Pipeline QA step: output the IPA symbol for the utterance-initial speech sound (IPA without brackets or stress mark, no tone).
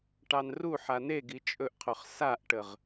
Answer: ʈ